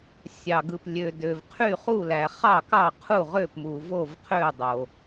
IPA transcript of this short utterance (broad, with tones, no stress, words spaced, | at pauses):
sʲɑ˩ ɡɯ˩plʲø˩ dø˩vqʰy˧˩χu˧˩læ˩ χɑ˧˩kɑ˧˩qʰu˧˩ ʁø˧˩pmu˩ vo˧˩vqʰø˧˩ dˤo˩